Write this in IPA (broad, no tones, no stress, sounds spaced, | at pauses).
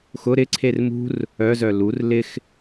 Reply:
x ʊ ɾ ɪ ǀʰ e r m ṳ r | œ z œ l u r l ɪ x